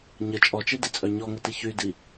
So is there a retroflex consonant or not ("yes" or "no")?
no